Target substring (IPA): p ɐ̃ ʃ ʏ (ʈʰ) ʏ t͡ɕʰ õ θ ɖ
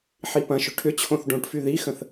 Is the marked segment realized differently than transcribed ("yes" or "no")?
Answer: no